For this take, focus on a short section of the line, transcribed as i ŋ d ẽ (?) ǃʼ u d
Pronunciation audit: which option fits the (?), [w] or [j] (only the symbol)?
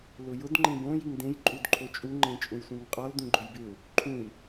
j